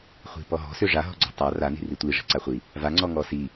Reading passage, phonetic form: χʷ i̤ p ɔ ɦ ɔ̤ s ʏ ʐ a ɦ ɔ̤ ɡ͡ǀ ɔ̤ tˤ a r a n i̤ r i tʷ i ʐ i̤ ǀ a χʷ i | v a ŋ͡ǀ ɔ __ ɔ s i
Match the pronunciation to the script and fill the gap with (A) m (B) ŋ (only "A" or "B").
B